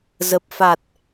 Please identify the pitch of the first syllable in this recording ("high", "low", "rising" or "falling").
low